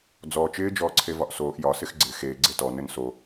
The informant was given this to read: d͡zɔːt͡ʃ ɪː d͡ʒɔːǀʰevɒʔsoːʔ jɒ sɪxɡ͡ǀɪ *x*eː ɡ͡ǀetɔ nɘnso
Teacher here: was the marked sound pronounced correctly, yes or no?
yes